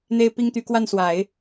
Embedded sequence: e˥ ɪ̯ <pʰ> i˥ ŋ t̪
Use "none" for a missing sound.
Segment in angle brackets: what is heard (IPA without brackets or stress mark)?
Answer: p